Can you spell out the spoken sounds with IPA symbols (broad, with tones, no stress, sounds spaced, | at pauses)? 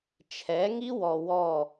t͡ʃʰ ɛ˨˦ ŋ i˦ w ɔ˨ w ɔ˦˨